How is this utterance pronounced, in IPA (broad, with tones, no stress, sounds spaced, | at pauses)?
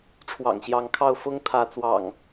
ʈ͡ʂʰ w ɑ̰˨˩ ŋ ɕ j ɑ˨˦ ŋ kʰ ɑ˥˨ ʊ̯ f ʊ˦ ŋ t̪ʰ ä˨˦ t͡s w ɑ̰˨˩ ŋ